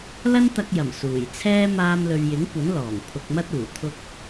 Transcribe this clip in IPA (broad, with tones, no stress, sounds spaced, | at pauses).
l ɐ˥ n t̪ ɐ˧ k̚ j ɐ˨˩ m s uː˨˩ j t͡sʰ ɛː˥ m aː˧ m l ɵ˨ ɥ j ɪ˨˥ ŋ kʷ ɐ˨˥ n l ɔː˨˩ ŋ pʰ ʊ˧ k̚ m ɐ˥ t̚ uː˨˩ t̪ʰ ʊ˥ k̚